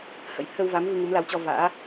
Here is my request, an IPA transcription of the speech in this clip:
h ə̰˧˥ j t̪ʰ ə˧ w v a˨˦ m v ɨ˧ ŋ u˨˦ m l a˨˦ w t͡ɕ ɔ˧ v a̰ː˧˥

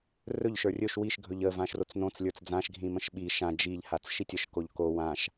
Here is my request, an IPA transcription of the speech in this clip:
r ɵ ʎ ʃ ə˞ rʲ ɵ ʃ w i ʃ ɡʱ ɵ ʎ ə v ã ʃ r o t͡s n õ t͡s lʲ ə˞ t͡s d͡z ã ʃ ɡʱ ĩ m ə̃ ʃ ɓ i ʃ ã d͡ʒ i ʎ h a t͡s ʃ i tʲ ə ʃ k o ʎ k o w ã ʃ

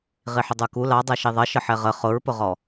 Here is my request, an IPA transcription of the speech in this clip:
ʁ i ħ ʊ dˤ ə˞ k u l ɑ dˤ ɛ ʃ i ðˤ ʌ ʃ ə ħ ɛ ʁ ə χ ʊ ɹ p ʊ ʁ ɔ

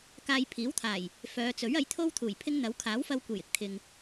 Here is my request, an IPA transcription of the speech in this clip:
k aː˧ j pʰ iː˨˥ w t̪ʰ aː˨˩ j | f œː˨˧ t͡s ɵ˨˥ ɥ ɐ˨˥ j t̪ʰ o˥ w t̪ʰ uː˨˩ j pʰ ɪ˥ ŋ n̪ ɐ˨˥ w kʰ aː˨˥ w f ɐ˧ w kʷ e˨˩ j ɪ˨ k̚ t̪ʰ ɪ˨ ŋ

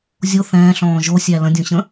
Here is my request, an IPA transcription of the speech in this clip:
zʲ o θ ɛ̃ː ɬ ɔ̃ː ʒ o sʲ æ l ə̃ dʲ õ ɕ ə̃

